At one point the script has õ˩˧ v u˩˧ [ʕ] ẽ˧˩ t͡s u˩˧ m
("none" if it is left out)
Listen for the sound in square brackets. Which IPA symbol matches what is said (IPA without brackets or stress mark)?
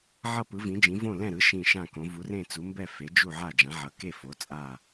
r